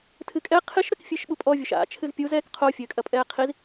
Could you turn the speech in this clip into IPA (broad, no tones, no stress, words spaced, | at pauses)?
tʰɨkʼɛ qʰiʃ ɾɘkfʲɘːʃɓupʼɔ vʲoʃa̰ t͡ʃʰɨzpʲuz ɛːkqʰo fʲɘːkʼɐpʼɛːqʰiz